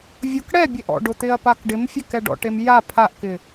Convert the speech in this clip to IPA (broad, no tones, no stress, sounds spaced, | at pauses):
vʲ ʊ k ɽ ɛ bʲ e ʔ ɔ̰ ɖ ʊ t̪ ɪ ɐ̯ p a k ɖ ɪ m fʲ ɛ k ɛ ɖ ɔ̰ ʈ e m j a pʰ a ʔ k ɪ